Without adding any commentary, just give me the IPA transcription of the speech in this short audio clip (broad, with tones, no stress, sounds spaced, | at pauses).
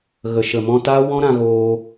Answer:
ɣ ə˨ ʃ ə˨ m ɔ̃˧ t a˦ w ɔ̃˦ ɾ ã˧ ɣ oː˧